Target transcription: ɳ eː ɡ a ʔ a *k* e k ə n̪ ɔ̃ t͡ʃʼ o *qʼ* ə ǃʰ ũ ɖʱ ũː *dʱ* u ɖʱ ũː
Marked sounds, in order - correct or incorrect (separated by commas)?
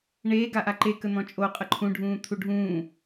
incorrect, correct, incorrect